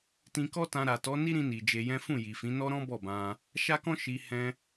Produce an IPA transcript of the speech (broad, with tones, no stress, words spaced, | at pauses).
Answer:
tĩ˧kɔ˦tã˧ ɾa˨tɔ˨˦ ni˦ ɾĩ˧ni˨ d͡ʒe˧jɛ̃˦ fũ˦˨ji˨fĩ˨˦ nɔ˦ɾɔ̃˦ bɔ˦˨bã˧ | ʃa˦kɔ̃˦ʃi˧ hɛ̃˦